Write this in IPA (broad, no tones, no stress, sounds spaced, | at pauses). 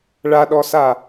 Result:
ɭ a ɗ ɔ s a